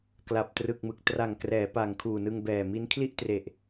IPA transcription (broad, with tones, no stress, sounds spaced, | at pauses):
k l a˨˩ p̚ t r ɯ˨˩ k̚ m ɯ˨˩ k̚ t r a˨˩ ŋ k r ɛː˩˦ p a˨˩ ŋ kʰ uː˨˩ n ɯ˧ ŋ b ɛː˨˩ m i˦˥ n kʰ l i˥˩ ʔ t r e˨˩ ʔ